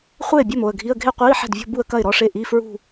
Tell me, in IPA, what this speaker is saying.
χʷ eː˥˩ bʲ ɐ˥˩ m o˥˩ ə̯ ɡʱ i˧˥˧ ə̯ ɡʱ e˥˧ qʷ iː˧˥˧ ħ ɛ̤˥˩ d vʲ ɔ̤˥˧ b u˥˧ ə̯ k ɐ˥˩ ɪ̯ ɾ ɔ˧˥˧ ʂ e˥˩ ʔ i˧˥˧ f ɹ ṳ˥˧

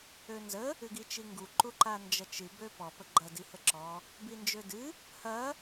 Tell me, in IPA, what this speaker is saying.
ø n z ə | ɨ ɡ i t͡ʃ i ŋ ɡ u ǃ u ǃ a n d͡ʒ ɐ t͡ʃ ɨ b ø p ɔ p ə ɡ͡ǃ ɐ d i h ə ǁ ɔ | b i n d͡ʒ ø d ɨ | h ɐ

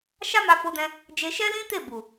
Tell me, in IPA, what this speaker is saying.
ʃ a˦ m a˧ f o˧ d ɛ̃˧ | d͡ʒ e˧ ʃ ɛ˦ l ĩ˦ t e˦˨ b u˨

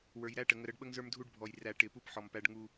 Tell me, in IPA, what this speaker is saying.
w ə˞˨ j ɾ æ˦ ʈ ə˨ ŋ ə˨ ɾ ə˦ ɖ ɓ ə˦ ŋ z ə˞˦ m dʱ u˦ ɖ bʱ ɔ˨ j r æ˨ ʈ ɪ˨ p u˦ p ħ ɔ˨ m p æ˦ ɖ ŋ u˦

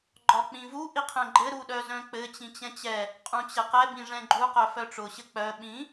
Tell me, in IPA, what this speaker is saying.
ɡ͡ǃ ɒ k͡p ĩ v u ʔ i qʰ ɛ̃ ɡ͡ǃ ɘ ɾ u ɗ œ z œ̃ k͡p ɘ t͡ɕ ĩ t͡ɕ ɛ̃ t͡ɕ ɛ | qʼ ũ t͡ɕ ɛ q ɛ b ĩ ʐ ɛ̃ ɡ͡ǃ u q œ f œ ʈ͡ʂ ʊ ɕ ɘ k͡p œ ɓ ĩ

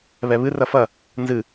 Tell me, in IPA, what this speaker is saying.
β ɛ β ɨ r ɐ f ɐ | n z ɨ

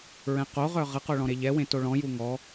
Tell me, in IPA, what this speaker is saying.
ɹ ɛ̃ q o ʁ œ ʁ ə q o ɭ ɔ̃ ɾ e ʎ ɛ w ẽ t o ɭ ɔ̃ j u ŋ ɔ

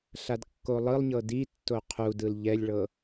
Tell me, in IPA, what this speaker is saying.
ɬ a d kː o lˠ ɯ lˠ ɲ ɤ d i tː o qʰ u d ɯ l ʎ ɛ lʲ ɭ ɤ

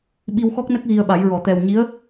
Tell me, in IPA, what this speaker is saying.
ɓ i˧ w x ɔ˦˥ k̚ n ə˦˥ k̚ ɣ i˧ ə̯ ɓ a˨˩˦ j ɹ ɔ˨˩˨ t̪ ɛ˨˩ w ɲ i˧˥ ə̯

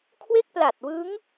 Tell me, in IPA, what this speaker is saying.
kʰ w e˥˩ k̚ p l a˨˩ t̚ w ɯ˦˥ ŋ

